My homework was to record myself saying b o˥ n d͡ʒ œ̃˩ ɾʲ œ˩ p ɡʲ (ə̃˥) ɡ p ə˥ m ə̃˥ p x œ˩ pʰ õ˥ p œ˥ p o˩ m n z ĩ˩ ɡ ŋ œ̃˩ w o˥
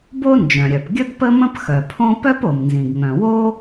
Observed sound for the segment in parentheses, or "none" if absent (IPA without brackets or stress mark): ə˥